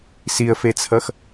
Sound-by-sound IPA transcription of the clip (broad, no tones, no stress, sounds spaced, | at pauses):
s i ə̯ f e t͡sʰ ʌ x